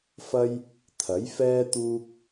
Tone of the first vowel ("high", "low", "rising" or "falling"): high